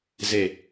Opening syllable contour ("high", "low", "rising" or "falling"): falling